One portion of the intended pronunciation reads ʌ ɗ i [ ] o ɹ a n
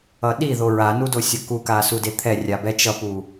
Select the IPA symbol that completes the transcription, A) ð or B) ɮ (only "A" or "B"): A